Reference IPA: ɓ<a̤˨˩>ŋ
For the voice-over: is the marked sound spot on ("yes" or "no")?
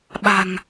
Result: yes